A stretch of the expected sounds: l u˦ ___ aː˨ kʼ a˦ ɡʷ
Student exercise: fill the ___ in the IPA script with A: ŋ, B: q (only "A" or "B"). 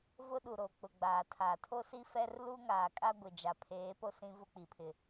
A